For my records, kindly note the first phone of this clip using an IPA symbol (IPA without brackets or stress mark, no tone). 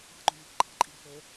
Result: ɑ̤